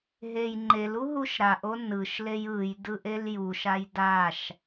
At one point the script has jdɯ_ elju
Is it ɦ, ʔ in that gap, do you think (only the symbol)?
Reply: ʔ